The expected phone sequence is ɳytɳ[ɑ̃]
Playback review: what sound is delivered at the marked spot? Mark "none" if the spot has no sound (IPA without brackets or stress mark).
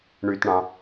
ɑ̃